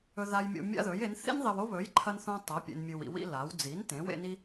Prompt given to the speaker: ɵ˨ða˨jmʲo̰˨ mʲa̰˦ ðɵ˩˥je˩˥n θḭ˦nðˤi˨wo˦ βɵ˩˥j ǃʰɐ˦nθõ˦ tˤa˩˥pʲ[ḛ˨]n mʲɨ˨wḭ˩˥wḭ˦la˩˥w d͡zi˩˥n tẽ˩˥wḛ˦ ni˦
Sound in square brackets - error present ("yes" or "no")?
no